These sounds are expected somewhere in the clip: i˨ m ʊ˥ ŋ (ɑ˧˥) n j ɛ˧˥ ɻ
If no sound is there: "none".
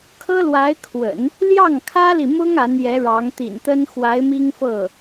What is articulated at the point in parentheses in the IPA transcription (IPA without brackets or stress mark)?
a˧˥